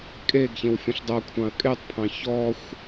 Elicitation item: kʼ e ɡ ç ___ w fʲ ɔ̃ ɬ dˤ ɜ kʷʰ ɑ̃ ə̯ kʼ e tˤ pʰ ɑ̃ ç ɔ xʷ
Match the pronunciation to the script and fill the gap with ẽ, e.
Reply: ẽ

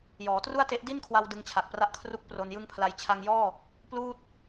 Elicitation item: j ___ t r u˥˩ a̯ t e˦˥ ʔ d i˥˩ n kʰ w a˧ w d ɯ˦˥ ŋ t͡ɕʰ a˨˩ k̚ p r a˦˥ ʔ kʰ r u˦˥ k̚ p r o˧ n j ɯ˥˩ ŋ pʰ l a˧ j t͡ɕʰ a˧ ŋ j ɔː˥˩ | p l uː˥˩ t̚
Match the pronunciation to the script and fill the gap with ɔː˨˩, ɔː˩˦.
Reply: ɔː˩˦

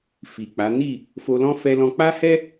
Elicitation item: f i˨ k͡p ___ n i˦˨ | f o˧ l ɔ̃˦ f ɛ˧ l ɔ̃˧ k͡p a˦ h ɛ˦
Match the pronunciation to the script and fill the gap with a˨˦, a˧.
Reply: a˨˦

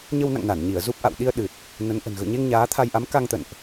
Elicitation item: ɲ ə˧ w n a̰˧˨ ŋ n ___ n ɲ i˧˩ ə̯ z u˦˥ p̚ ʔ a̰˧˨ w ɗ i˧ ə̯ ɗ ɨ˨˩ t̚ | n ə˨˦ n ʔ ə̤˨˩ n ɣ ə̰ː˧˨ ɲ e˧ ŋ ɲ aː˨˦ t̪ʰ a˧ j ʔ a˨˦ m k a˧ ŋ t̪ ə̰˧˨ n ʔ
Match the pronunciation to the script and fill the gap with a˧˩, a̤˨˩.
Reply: a˧˩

